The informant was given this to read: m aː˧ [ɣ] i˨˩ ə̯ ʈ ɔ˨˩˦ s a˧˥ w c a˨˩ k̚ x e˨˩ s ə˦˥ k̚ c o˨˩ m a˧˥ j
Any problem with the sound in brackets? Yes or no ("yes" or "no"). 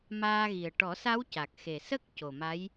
no